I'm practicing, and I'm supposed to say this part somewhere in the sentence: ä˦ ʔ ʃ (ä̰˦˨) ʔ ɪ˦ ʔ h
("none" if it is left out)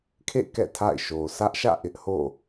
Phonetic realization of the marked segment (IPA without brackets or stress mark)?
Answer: ä̰˦˨